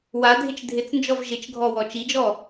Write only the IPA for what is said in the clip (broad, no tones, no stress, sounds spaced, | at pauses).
w a dʱ ɪ t͡ʃ dʱ ɪ t͡s n d͡ʒ ɔ v ʒ ɪ t͡ʃ ɡʱ ɔ w ɔ t͡ʃ i d͡ʒ ɔ